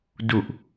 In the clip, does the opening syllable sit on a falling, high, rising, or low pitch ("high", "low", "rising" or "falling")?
low